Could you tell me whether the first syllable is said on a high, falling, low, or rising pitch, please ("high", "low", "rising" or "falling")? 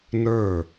falling